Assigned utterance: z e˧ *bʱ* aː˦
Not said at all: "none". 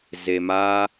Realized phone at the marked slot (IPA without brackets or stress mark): m